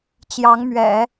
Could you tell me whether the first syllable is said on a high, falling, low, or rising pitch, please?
rising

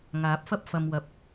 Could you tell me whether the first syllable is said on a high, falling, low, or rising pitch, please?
rising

